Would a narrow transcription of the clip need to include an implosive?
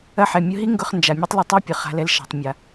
no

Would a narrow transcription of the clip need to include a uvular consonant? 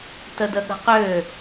yes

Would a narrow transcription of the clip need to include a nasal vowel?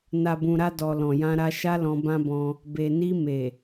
yes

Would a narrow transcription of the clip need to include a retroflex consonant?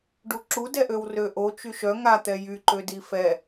yes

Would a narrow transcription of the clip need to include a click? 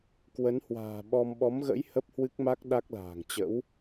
no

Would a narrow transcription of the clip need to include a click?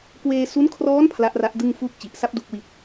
no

